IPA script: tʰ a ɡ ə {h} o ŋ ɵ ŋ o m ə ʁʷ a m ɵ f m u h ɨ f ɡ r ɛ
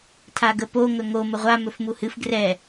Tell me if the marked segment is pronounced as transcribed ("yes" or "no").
no